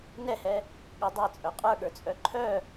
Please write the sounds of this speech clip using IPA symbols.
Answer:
n ɛ h ɛ | ɠ ə dˤ ɜ t͡sʼ œ qʼ ə˞ ɠ ə˞ t͡sʼ œ ǃʰ œ

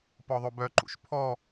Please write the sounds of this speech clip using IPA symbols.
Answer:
p ɔ ðˤ o b œ ǃ ṵ ʃ pʰ ɔ

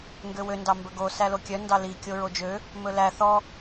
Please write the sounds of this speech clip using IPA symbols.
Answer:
ŋ ɡ ø w ø n d ɑ m b ɵ ɡ o s æ l o kʲ œ n d ɑ l i kʲ o ɹ o d͡ʒ ø | m ɵ l æ θ ɔ

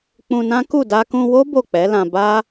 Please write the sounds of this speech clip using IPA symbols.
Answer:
k͡p ũ˧ n ã˦ k u˦˨ d a˧ k ũ˧ w o˦ b o˦˨ k͡p ɛ˨˦ l ã˧ b a˦

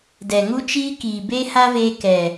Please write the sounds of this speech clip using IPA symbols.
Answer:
d ɛ˨ ŋ u˦ t͡ʃ iː˦ k iː˨ b eː˦ h a˦ v eː˧ k ɛ˨

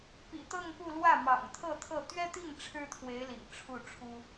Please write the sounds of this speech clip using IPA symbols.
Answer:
p ḭ˨˩ t̪ ɤ˥˧ ŋ p u˥˧ l w ä˥˩ m ɑ̰˨˩ ŋ t̪ʰ ɤ˥˧ t̪ʰ ɤ˥˩ t̪ ɥ ɛ˥ t̪ i˥˩ ŋ ʈ͡ʂʰ ɻ̩˥ t̪ʰ w e˧˥ ɪ̯ l ḭ˨˩ ŋ ʈ͡ʂʰ u˥˩ ʈ͡ʂʰ u˥

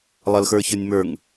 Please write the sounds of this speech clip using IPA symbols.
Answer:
lˠ ʌ l x ə˞ ç ə˞ nʲ m ə˞ ŋ

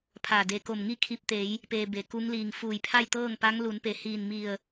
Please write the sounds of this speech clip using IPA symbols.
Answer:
pʰ a˧˩ d e˧ k o˧˩ m ŋ i˥˨ kʰ i˧ p̚ t̪ e˩˧ j | p eː˧ b e˩ k u˧˥ ŋ l iː˧˩ ŋ f uː˧˩ j pʰ a˥˨ j t̪ ɤː˥˨ ŋ p a˧˥ ŋ l u˩˧ n p e˩ h iː˧˩ n m i˧˩ ə̯

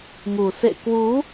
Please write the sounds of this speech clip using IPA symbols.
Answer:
ŋ u˨˩ s ḛ˧˨ k w u˨˦

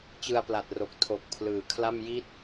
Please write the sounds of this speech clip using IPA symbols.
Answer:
t͡ɕ ɯ˧ a̯ p l a˨˩ t̚ r o˨˩ k̚ tʰ o˨˩ k̚ pʰ l ɯː˩˦ kʰ l a˥˩ m j i˦˥ t̚

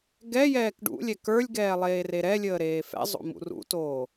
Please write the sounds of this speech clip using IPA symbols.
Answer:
ɡ ɛ j ɛː k ɖ ṵ lʲ ɛ k ə˞ lʲ ɡ ɛː lˠ eː r e ɾ ɛ lʲ əː ɾ eː f ɛ̰ zˤ o̰ m ṵ r ṵ t oː

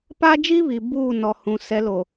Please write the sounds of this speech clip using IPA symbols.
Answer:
p a˦ d͡ʒ iː˦ β i˨ b uː˦˨ n ɔ˨ h ũ˨ s ɛ˨˦ l o˨

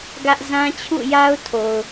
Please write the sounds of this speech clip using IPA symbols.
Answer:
ɡ ä˦ ʔ z ã˦ t͡ɕʰ ṵ˦˨ j a˦ ʊ̯ tʰ o˨ ʊ̯

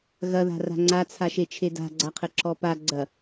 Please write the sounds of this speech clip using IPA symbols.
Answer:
ɣ ɐ ð a̤ r a̤ ŋ͡ǀ a t͡sʰ a ʃ e t͡ʃʰ e d a̤ ɡ͡ǀ a qʰ ɘ ǁ ɔ p a ɡ͡ǀ ɐ

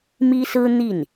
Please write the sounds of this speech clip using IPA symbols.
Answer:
m i˥ s ɹ̩˥ n̪ i˥˩ n

